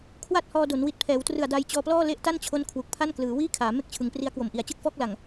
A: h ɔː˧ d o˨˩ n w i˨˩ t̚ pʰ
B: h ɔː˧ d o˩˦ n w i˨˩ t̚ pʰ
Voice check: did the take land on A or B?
B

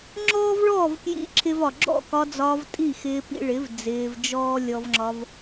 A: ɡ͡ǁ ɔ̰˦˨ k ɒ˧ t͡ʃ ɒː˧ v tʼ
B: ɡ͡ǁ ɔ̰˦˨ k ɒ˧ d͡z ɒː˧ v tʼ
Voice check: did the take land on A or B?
B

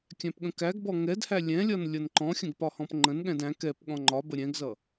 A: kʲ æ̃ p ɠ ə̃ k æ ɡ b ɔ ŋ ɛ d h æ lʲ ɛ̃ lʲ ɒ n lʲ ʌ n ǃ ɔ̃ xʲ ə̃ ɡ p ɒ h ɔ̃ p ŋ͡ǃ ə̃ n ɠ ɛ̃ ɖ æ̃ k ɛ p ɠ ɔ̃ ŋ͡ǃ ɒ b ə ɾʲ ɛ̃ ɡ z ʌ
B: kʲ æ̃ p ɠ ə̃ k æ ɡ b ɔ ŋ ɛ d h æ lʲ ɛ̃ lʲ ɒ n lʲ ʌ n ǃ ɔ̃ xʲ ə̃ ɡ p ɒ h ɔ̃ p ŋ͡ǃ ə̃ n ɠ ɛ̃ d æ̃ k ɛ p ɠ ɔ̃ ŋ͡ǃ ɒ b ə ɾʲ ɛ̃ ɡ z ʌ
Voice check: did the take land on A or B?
B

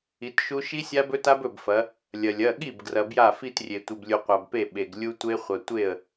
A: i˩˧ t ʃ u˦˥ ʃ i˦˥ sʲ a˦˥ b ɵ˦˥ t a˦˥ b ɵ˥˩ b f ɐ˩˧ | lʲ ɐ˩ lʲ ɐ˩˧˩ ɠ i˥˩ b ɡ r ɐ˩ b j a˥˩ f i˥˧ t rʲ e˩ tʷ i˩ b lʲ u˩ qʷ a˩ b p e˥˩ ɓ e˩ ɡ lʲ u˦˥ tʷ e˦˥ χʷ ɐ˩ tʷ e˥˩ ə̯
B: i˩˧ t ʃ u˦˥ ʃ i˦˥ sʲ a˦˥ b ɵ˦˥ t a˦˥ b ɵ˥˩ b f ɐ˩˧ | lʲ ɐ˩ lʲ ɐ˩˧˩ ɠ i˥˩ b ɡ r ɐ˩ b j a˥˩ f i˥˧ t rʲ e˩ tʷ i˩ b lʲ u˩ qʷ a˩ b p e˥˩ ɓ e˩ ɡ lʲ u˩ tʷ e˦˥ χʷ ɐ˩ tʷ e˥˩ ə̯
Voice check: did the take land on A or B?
A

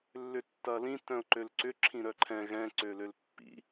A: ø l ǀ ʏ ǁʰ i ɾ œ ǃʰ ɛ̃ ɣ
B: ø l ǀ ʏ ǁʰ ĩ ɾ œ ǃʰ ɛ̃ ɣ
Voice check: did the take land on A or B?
B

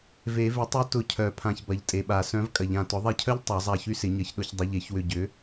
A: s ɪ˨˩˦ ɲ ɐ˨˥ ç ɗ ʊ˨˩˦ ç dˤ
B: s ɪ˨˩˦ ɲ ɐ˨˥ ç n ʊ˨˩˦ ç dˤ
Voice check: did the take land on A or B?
A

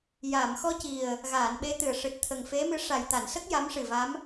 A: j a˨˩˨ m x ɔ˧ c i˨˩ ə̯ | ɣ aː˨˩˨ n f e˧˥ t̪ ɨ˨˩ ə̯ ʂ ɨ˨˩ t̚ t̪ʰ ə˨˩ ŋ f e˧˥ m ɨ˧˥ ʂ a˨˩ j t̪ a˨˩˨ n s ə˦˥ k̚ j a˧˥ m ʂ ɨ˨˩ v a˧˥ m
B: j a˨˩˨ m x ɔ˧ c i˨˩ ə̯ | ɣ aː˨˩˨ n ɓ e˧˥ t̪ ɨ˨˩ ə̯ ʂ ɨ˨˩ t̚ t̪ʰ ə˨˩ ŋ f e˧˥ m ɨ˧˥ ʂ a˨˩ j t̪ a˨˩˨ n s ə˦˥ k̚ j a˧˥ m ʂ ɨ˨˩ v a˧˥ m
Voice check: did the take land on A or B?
B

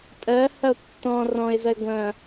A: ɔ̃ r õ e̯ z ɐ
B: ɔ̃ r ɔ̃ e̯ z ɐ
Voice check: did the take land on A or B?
B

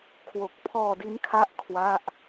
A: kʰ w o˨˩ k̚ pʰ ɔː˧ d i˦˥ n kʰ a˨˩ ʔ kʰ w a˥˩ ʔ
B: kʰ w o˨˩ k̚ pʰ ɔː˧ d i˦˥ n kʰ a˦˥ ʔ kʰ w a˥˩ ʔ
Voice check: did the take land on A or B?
B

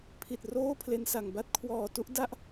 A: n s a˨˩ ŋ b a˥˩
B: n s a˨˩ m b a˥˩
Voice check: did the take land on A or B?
A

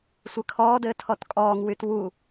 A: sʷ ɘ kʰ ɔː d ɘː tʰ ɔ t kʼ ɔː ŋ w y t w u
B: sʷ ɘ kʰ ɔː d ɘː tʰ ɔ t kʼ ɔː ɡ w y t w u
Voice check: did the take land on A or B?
A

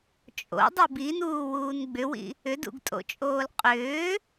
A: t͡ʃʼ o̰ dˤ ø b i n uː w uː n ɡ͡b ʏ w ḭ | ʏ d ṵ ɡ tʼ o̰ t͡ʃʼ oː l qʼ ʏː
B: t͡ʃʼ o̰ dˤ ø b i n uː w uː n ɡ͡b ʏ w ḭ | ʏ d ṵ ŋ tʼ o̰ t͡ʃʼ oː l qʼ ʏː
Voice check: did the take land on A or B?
A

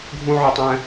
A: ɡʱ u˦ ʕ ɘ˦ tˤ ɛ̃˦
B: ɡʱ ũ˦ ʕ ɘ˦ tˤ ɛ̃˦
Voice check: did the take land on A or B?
B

